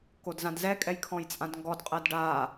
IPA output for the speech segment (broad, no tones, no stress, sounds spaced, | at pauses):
k o d z ã d z ɛ kʼ ɛ j kʰ ɔ̃ j t͡sʼ ã d ŋ ɡ ɔ d qʼ ɜ d ɖ aː